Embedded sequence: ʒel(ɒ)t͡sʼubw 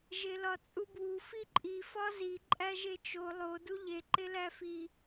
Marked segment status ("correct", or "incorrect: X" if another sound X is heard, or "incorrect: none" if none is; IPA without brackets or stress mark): correct